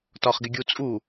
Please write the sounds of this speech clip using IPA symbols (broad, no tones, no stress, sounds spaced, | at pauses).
t ɒ χ ɡ ɪ ɡʲ u t͡sʼ u